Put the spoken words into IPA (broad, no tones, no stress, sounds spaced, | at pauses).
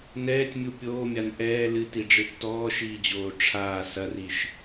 n ɛː tʲ mʲ u pʲ oː mʲ a n ʔ ɛː l ɨ t i ɖ͡ʐ ɨ tː ɔː ʃ iː d͡ʑ oː ʈ͡ʂʰ aː s ɐ r i ʃ